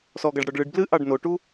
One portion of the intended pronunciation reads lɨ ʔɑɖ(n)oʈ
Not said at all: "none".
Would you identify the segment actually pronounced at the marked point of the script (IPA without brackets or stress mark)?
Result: n